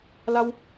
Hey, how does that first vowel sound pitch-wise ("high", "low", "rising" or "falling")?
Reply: high